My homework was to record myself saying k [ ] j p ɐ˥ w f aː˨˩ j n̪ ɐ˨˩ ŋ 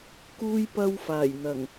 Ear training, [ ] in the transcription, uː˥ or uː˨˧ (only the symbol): uː˥